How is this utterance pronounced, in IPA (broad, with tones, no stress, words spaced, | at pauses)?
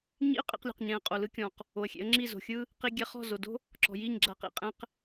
ɲḭ˦ə̯qʼḭ˧qlʲo̤˨qɲɛ̃˨ə̯ qʼo˨lɯ˦kʲɔ̃˨q | o˨ə̯xʲḛ˨˦ə̯ ŋ͡ǁi˦˨zo̤˨ xʲɯ˦ | qi˦ ɡʲɛ˧χɔ̤˦˨zo˨ do̤˦ | ǁɔ̤˨ji˦˨ɲɡ͡ǁa˧qḭ˨ qʼɛ̃˦q